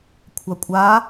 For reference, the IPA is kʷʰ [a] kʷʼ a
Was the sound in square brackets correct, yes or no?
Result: yes